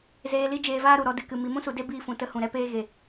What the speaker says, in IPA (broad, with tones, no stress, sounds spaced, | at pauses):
z eː˧ l i˦ d͡ʒ eː˧ v aː˦ ɾ u˨ ɾ ɔ˨˦ d ɨ˨ k ɨ˨ m i˨ m ũ˦ s u˨ d e˦ b iː˧ f ũ˨ t ə˧ h ũ˨ ɾ ɛ˧ p eː˧ ɣ e˦˨